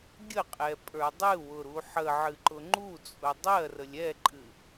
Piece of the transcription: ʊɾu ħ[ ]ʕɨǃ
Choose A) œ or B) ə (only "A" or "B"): B